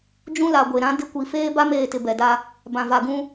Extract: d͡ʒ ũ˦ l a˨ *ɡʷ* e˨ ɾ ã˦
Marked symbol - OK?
yes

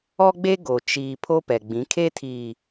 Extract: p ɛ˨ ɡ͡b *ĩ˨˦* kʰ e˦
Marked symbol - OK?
yes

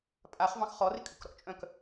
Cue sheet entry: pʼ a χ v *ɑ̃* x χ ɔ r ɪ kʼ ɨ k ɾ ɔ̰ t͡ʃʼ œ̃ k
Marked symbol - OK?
yes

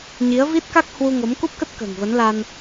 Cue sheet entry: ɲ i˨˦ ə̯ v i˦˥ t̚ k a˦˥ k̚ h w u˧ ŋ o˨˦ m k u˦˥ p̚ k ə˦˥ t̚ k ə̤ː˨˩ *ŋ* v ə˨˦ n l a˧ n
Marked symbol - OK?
yes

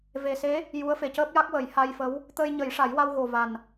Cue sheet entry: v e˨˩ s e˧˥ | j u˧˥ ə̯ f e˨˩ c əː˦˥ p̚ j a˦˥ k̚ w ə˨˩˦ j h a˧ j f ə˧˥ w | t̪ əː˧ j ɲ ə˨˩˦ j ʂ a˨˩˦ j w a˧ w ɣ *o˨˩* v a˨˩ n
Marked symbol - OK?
yes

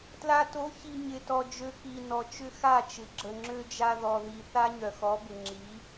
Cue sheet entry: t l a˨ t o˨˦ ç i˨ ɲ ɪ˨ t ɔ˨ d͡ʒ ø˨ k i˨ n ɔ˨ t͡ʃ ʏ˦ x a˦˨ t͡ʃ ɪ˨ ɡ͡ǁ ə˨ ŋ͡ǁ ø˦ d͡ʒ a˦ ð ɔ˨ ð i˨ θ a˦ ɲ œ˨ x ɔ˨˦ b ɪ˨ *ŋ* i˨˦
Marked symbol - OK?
no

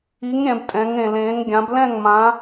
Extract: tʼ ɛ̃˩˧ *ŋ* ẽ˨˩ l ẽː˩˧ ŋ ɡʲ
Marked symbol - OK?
yes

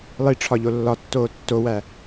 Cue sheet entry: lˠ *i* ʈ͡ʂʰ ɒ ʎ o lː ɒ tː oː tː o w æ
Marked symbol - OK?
yes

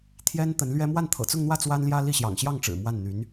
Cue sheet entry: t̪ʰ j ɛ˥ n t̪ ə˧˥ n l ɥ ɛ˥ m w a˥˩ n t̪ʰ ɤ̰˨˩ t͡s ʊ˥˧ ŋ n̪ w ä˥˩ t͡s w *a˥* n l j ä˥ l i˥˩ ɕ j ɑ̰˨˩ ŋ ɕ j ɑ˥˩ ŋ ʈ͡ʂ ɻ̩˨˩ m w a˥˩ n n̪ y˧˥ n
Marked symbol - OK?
yes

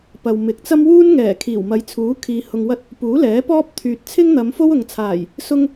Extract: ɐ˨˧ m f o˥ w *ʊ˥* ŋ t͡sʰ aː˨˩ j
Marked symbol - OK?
no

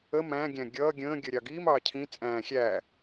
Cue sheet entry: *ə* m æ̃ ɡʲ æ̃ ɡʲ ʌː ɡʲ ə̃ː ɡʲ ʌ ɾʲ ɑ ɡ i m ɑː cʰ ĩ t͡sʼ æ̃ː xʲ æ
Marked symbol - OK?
yes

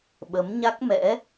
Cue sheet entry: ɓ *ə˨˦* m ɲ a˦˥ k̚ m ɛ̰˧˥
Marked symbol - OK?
yes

